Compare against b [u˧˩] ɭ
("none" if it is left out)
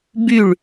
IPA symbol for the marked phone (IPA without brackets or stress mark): y˧˩